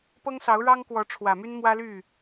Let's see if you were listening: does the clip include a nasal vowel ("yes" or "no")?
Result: no